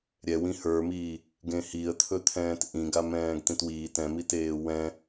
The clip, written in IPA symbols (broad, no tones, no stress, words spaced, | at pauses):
ɾʲɛ wĩhə˞miː | ɡẽhiə̯t̪ʰɵ t̪ʰɛ̃ːtʔĩɡ amɛ̃ːɡtĩtwiː tɛ̃miteː wɛ̃